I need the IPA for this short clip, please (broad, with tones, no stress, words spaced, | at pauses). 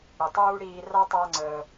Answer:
ɽə˩tˤuː˥ ɽiː˧ ra˥tˤa˧ ŋ͡ǀəː˩